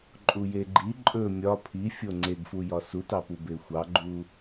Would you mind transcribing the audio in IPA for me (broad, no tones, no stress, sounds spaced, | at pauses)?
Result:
ǃʼ u j e ɡ͡ǃ i ǃʼ ɵ mʲ ɒ pʰ i fʲ o ŋ͡ǀ e ɡ f u j ɒ s u t ɑ p u b e xʷ ɑ ɡ͡ǃ u